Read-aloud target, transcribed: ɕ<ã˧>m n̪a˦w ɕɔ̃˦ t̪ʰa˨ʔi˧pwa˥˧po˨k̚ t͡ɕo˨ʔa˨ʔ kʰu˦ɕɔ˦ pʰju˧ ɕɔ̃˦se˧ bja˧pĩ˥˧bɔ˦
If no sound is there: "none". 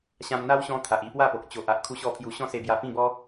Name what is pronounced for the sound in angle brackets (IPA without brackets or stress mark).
ã˧